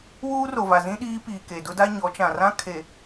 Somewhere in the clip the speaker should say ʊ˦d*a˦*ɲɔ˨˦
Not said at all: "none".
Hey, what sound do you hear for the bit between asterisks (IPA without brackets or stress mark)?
a˦